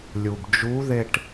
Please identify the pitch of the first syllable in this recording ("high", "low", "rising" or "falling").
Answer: low